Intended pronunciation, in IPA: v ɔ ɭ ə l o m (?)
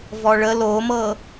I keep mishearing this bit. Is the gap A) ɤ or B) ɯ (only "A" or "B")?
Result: A